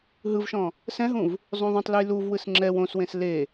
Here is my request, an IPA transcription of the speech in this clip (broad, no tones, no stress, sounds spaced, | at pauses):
ɦ ɯ v ʃ ɔ̃ | s ɛ̃ ɦ ũ v | zˤ ũ ðˤ ũ tˤ l ɯ j l u v w ɯ s ŋ͡ǁ ɛ w õ s w ẽ s l e